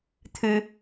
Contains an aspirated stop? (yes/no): yes